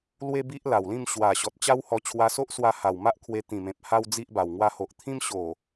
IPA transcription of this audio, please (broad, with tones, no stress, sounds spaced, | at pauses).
l w e˦ b i˦ ʔ l a˨˩ w l ĩ˥˧ m ɕ w a˨˩ ɕ ɔ˨ t̚ t͡ɕ a˦ w h ɔ˧ t͡ɕʰ w a˧ s o˦ ʔ s w a˧ h a˨˩ w m a˦ ʔ kʰ w e˧ t̪ ĩ˨˩ m ẽ˨ p̚ h a˦ w d͡z i˦ ʔ b a˨˩ w ŋ w a˧ h o˨ ʔ t̪ʰ ĩ˦ m ɕ o˨˩